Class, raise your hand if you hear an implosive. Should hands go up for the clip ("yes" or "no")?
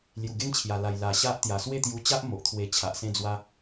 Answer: no